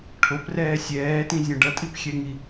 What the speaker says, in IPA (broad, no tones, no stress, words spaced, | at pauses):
ʈʰoprɛː sʲɛːtĩzʲõ ɖʌtʼipxʲɛŋi